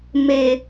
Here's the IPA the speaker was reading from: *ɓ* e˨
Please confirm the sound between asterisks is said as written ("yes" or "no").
no